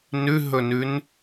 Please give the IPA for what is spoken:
nʉɦɵnʉn

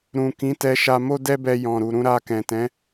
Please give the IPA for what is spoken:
ɾũ˨kĩ˨˦tɛ˧ʃa˧ mo˦dɛ˦bɛ˧ jɔ̃˨ɾu˨ ɾũ˧ɾa˧kɛ̃˨tɛ̃˨˦

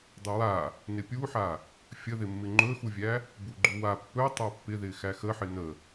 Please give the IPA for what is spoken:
dˤəwa | nɪpʲuħa | fʲəðɪmːɪ ŋ͡ǃɵxuvʲæ | buɡ͡ǃuwa pːɵ tˤapːɪðɪ xæxəħɪ nə

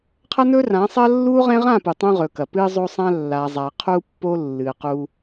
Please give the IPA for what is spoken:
qʰɐ˦nɵ˦rã˨˦sˤɐ˦ lːu˦ʁẽ˦ʁã˦˨ pu˨tˤũ˦ʁɵ˨kɐ˨ pɨ˦ zˤo˦sˤã˦ lːa˨ zˤa˨ qʰu˦pːo˦ lːɨ˨qu˦

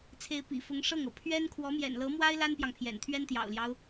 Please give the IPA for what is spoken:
t͡sʰe˧˥ɪ̯pḭ˨˩fʊ˧˥ŋ ʂɤ˥˩ŋɤ˩ pʰɥɛ˥n kʰwɔ˧˥mjɛ̰˨˩nlɤ˧˥mwa˥ɪ̯ la˥npjɑ˨ŋ pʰjɛ̰˨˩nt̪ʰɥɛ˥n t̪jɑ̰˨˩ʊ̯ljɑ˦ʊ̯

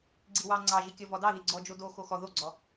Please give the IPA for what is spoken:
ɡ͡ǀiwɑ ŋ͡ǀɑʒikʲɔ vɔdɑði ɡ͡ǀɔd͡ʒo doxo xɔ ðoɡ͡ǀɔ

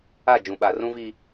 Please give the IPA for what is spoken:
a˦˨d͡ʒũ˨ɓa˨ rũ˦vi˦

